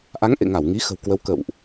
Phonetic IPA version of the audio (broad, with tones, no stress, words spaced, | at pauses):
ʔa˨˦ŋ ʔḛ˧˨ŋa˧˩wŋi˨˦ xə̤˨˩wkwə˨˦w kə̰˧˨wʔ